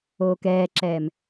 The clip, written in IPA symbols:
oː k ɛː ǁ ɛː m

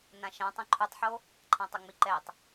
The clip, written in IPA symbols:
n ã ʃ ã tˤ ɛ̃ ǃʰ u tˤ ħ o | ǃʰ ã tˤ ʌ ŋ͡m i ǃ ɛ tˤ

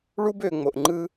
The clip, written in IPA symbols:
ɭ u˧ b ø˨ ŋ͡m o˨ ʔ ŋ͡ǃ ɯ˧

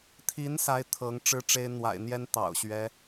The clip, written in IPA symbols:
t̪ʰ i˧˥ n s a˧˥ ɪ̯ t̪ʰ ɤ˧˥ ŋ ʈ͡ʂ ɻ̩˥˩ ʈ͡ʂ e˥ ɪ̯ n̪ w a̰˨˩ ɪ̯ n̪ j ɛ˥ n t̪ ɑ̰˨˩ ʊ̯ ɕ ɥ ɛ˧˥

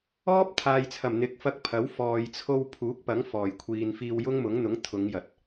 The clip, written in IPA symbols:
ɔː˥ p̚ t̪ʰ aː˨ j t͡sʰ ɐ˨˩ m n̪ ɪ˨˥ k̚ f ɐ˧ k̚ pʰ ɐ˨˥ w f ɔː˨ j t͡sʰ o˧ w pʰ uː˨˥ k̚ p ɐ˨˥ ŋ f ɔː˨˩ j kʷʰ iː˨ n f iː˧ w j ʊ˥ ŋ m ʊ˨˥ ŋ n̪ ʊ˨˥ ŋ t̪ʰ ʊ˨˧ ŋ j ɐ˨ t̚

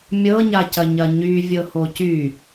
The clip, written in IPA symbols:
mʲ ɤ ɲ a c ɐ ɲ ɐ ɲ y vʲ ɤ h o c y

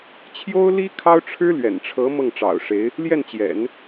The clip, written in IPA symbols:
t͡ɕʰ j o˥ ʊ̯ l i˥ kʰ ɑ˥ ʊ̯ ʈ͡ʂʰ ɻ̩˥ l ɥ ɛ̰˨˩ n ʈ͡ʂʰ ɤ˧˥ m ɤ˥˩ ŋ ʈ͡ʂ ɑ̰˨˩ ʊ̯ ʂ e˧˥ ɪ̯ | l j ɛ˥˩ n t͡ɕ j ɛ̰˨˩˦ n

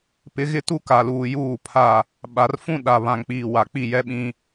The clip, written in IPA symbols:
p ɪ˨˦ ɣ ɪ˦ t u˦ k a˨ l uː˨ j uː˦˨ pʰ a˦˨ | ɓ a˨ r f ũ˦ ɗ a˨ β ã˨ ŋ k͡p iː˨ w a˨ k͡p i˦˨ j ɛ˦ ɓ ĩ˦

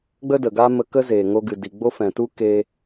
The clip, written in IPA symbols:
ɡ͡b ə˦ d ə˨ ɡ aː˦ m ə˧ k ə˦ z eː˨ ŋ o˧ ɡ ɨ˨ d i˨ ɡ͡b o˦ f ɛ̃˨ t u˦ k eː˦

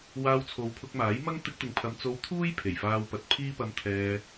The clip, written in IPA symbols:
w aː˧ w t͡sʰ o˨˧ w pʰ ʊ˧ k̚ m aː˨˥ j m ɐ˥ ŋ t̪ ɪ˧ k̚ t̪ ɪ˨ ŋ pʰ ɐ˨˧ m t͡s o˧ w t̪ʰ uː˥ j pʰ e˨˩ j f aː˧ w p ɐ˨˥ t̚ pʰ iː˥ p ɐ˧ m t̪ʰ ɛː˧

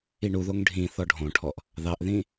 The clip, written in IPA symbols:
i ɳ u ð o ŋ ɖʱ ĩ θ ɔ ɖʱ õ ʈʰ ɔ ʔ | ð ɑ ʔ ð ĩ

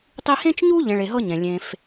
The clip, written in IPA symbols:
tˤ i˦ h ẽ˦ t͡ʃ ɲ u˦ ʎ ẽ˨ ɭ e˨ ɦ ɤ˦ ɲ ɛ̃˩ lʲ ẽ˨ f

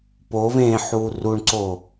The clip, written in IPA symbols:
p o v ẽ ħ u r u ɳ ǀ o

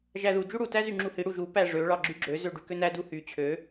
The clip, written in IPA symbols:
ʒ æ ð u d͡ʒ u ɽ u t æ z y ŋ͡ǁ u h i ɽ u ʒ u p æ ʐ ø ɭ ɑ ɡ͡ǁ y ɡ͡ǁ ø z ø ɖ y k ø n æ d u h y t͡ɕʰ ø

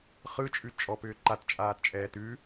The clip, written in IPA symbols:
χ ɯ t͡ʃʼ ʉ t͡ʃʼ ɔ p ʏː ǃ a t t͡ʃʼ aː t t͡ʃʼ ɛː t ʉ

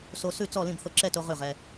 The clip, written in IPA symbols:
s o˧ s ʉ˥˨ t͡s ɔ˥˨ l ĩ˥˨ b θ o˧ ǁ ɛ˥˨ t o˧ ʁ ʉ˥˨ ʁ ɛ˧

